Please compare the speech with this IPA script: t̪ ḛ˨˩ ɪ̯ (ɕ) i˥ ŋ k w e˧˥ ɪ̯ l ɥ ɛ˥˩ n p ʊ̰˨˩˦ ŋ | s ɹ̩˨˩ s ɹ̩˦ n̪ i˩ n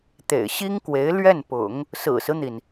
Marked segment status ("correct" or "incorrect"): correct